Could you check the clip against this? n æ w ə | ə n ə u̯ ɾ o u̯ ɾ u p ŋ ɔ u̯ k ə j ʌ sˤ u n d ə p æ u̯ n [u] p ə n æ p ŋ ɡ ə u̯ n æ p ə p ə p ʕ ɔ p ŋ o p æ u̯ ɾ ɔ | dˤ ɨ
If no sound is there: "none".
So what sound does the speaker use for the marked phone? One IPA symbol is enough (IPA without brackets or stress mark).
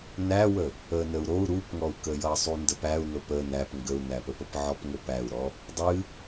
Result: o